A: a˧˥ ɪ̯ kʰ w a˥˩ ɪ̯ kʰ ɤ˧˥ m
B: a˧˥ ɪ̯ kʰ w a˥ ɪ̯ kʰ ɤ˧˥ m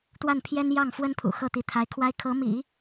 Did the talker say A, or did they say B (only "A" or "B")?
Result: B